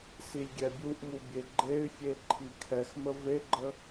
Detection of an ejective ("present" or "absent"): absent